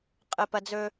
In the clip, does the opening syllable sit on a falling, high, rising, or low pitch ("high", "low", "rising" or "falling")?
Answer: low